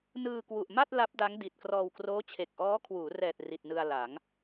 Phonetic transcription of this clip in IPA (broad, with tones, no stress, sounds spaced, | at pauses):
n ɯː˧ k w u˨˩ ʔ m a˥˩ t̚ l a˦˥ p̚ d a˦˥ ŋ d i˨˩ t̚ k r ɔː˧ w k r oː˦˥ t͡ɕʰ e˨˩ k̚ ʔ ɔː˦˥ kʰ w uː˩˦ r ɛː˨˩ t̚ r i˨˩ t̚ n ɯ˧ a̯ l a˩˦ ŋ